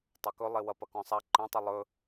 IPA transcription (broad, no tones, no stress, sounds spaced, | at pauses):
tˤ a k ɵ lˠ e w ɐ p ɐ k ɔ̃ sˤ a ǃ ɛ̃ tˤ ʊ lˠ ɵ